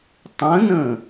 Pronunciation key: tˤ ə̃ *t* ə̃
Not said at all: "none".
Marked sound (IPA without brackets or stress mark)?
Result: n